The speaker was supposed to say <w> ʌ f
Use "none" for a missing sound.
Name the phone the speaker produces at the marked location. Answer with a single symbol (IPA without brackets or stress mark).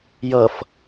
j